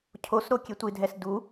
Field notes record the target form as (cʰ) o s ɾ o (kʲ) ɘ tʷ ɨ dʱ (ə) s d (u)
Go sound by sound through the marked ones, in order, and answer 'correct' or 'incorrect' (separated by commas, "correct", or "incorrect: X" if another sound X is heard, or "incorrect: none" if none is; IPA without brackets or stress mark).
correct, correct, incorrect: ɛ, correct